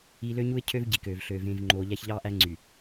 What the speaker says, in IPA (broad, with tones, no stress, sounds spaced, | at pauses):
i˨ l ø˦ ɲ u˦ ɪ̯ cʰ ø˦ v ɟ i˨ k øː˨ v ɬ øː˨ v ẽː˨ v ŋ͡ǃ oː˨ ʎ æ˦ ç ʎ ɑː˦ ʔ æ˦ ŋ͡ǀ y˨